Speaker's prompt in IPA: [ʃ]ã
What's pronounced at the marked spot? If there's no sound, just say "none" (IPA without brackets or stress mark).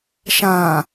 ʃ